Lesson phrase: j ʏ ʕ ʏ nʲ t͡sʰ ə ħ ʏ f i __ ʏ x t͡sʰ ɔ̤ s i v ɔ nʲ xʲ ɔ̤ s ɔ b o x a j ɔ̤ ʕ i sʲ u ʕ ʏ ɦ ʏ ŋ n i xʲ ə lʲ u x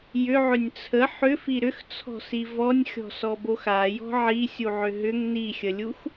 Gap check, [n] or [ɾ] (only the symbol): ɾ